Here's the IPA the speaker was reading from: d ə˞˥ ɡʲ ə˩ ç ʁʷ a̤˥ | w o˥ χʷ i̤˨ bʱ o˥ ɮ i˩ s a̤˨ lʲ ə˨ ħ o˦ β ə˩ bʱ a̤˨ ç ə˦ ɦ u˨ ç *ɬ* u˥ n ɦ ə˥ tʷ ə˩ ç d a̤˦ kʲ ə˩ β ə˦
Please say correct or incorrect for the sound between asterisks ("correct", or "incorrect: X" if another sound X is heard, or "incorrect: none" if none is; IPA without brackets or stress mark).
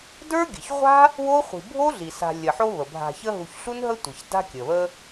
correct